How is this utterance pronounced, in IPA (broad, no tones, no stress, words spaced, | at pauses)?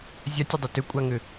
zʲatʲʏdˤʏ tʏkʷʼaŋʏ